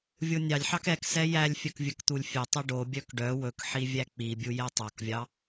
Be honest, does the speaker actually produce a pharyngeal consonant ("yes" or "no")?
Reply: yes